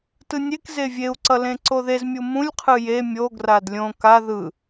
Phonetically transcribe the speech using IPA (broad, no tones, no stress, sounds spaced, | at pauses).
t ɯ nʲ e k z e vʲ e u̯ ǀ ʌ l ẽ ǀ o ð e z mʲ u m ũ lʲ qʰ ɯ j e mʲ o ɡ r a d lʲ õ k a ð ɯ